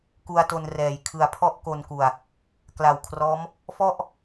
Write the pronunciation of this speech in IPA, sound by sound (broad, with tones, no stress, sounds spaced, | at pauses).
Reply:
k u˧ a̯ t o˧ n r ɛː˩˦ j kʰ ɯ˨˩ a̯ pʰ ɔ˥˩ ʔ k o˧ n k u˨˩ a̯ | k l a˨˩ w kʰ r ɔː˦˥ m | f ɔ˥˩ ʔ